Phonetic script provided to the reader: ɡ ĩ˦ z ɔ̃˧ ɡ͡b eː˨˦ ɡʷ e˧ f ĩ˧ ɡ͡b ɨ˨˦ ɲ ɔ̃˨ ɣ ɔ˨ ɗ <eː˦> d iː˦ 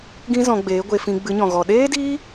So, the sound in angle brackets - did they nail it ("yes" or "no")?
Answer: yes